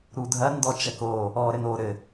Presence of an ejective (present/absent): absent